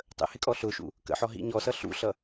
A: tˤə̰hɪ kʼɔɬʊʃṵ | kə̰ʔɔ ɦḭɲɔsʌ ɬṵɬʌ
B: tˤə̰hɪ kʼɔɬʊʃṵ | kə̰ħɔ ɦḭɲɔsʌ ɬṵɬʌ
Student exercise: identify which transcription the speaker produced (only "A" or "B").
B